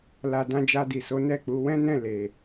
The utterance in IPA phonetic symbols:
la˨ dã˧d͡ʒa˧di˨so˨˦ nɛ˦˨k͡pu˨˦ wɛ̃˦nɛ̃˦˨ le˨

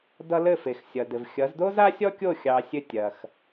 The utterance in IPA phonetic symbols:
dʌ˧ lɘ˥˩fe˩xsʲʌ˩ dɘ˩vxʲʌ˩˥z do˥za˥sʲɔ˥kʲo˥˩ xʲɑ˧ sʲɘ˥˩ tʲɐ˩x

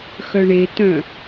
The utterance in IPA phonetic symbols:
xœɳetœ̃

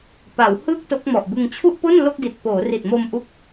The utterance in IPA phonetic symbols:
pa˩˦whɯː˥˩k̚ to˦˥k̚mɔ˨˩ʔbɯ˧ŋ t͡ɕʰu˥˩ʔpo˥˩n lo˥˩k̚di˨˩t̚ poː˩˦ri˨˩t̚mo˧m ʔu˦˥k̚

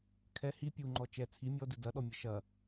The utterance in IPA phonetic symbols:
kʰɛ hi pʲuŋ͡ǃɔ t͡ʃɛ t͡sʰi mʲɔdɨ dɐɗɔmʲɘ ʃɐ

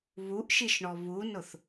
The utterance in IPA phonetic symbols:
βuʔʃiʃɳɔ βunʊθ

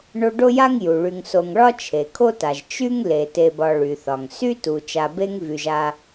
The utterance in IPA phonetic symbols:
ɳo˦ɖo˥ja˥ŋ ju˩ɭy˨ŋso˨ŋ ɭɒ˥t͡ʃʰe˩ kʰo˥ta˩ʒ t͡ʃy˥ŋ le˩te˨bɒ˨ ɭy˩θɒ˩ŋ sy˥tu˩ t͡ʃa˨be˦ŋ vy˩ʒa˨

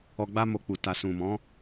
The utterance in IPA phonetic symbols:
ɔ˧ɡ͡ba˦mo˧k͡pu˨ ta˨ sũ˨mɔ̃˨˦

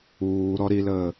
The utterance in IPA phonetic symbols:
uːɾɔ ɾiləː

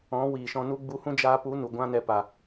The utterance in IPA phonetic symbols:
ɔ̃˨˦ wiː˨ʃɔ̃˧nu˦ ɡ͡bu˧hũ˦d͡ʒaː˧pu˨˦ nu˨ɡʷã˦nɛ˧ pa˨

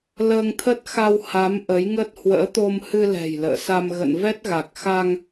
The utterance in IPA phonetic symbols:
ləː˧ŋt̪ʰə˦˥t̚xa˧w ha˨˦m ʔə˨˦jŋə˦˥t̚ hwə̰ː˧˥t̪o˧m hɨ˧lɛ̤˨˩j lə̰ː˧˨sa˧m ɣə̰˧˨nvɛ˦˥t̚ ɣa˨˩k̚xa˧ŋ

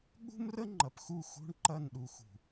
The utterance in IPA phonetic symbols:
ɠṳ˦mrə˦ ŋ͡ǃɐ˨pxu˦˨ xṳ˦ɳ ǃɐ˦˨nɗu˨xṳ˨

